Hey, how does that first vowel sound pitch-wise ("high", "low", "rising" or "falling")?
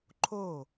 falling